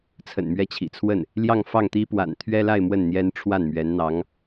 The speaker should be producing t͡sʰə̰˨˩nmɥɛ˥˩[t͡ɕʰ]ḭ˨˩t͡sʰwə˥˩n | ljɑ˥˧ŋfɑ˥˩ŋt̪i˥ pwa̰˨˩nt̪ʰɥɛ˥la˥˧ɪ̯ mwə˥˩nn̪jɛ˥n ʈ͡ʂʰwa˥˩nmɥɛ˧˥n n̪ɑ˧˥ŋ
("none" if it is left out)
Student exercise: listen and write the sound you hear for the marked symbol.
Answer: t͡ɕʰ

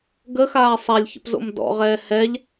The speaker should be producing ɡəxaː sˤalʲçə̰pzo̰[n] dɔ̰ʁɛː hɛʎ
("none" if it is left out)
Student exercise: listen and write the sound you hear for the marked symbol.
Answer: m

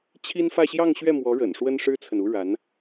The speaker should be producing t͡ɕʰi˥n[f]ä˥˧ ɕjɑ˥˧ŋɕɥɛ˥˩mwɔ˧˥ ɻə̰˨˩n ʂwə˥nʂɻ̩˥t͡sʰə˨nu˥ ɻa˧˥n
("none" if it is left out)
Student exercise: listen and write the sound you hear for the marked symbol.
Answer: f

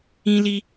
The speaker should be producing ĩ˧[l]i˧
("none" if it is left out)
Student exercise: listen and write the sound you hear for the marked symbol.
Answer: l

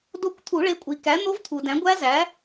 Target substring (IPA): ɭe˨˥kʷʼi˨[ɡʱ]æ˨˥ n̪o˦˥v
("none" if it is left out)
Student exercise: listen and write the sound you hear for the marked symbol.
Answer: k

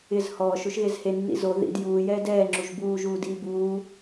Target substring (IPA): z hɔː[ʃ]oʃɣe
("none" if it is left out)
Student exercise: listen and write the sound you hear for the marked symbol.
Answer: ʃ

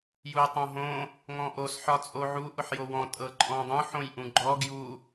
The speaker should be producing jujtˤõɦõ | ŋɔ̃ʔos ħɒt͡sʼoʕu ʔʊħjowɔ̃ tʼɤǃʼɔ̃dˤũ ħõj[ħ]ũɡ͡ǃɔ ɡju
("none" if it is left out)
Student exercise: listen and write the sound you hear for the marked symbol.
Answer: ʔ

